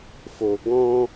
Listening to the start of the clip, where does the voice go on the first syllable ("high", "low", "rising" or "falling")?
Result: low